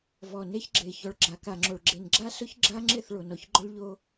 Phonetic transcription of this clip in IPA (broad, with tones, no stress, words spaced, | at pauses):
vɔ˨ne˦çɡ͡ǁe˨ çɔ˨ɭɡ͡ǁa˨ka˨ŋ͡ǁo˨ɭ ɡ͡ǁe˨nɡ͡ǁa˦ sʊ˦çɡ͡ǁa˦ŋ͡ǁɪ˦˨θ ɭo˨nɔ˨ç ɡ͡ǃʊ˦ɭʎo˦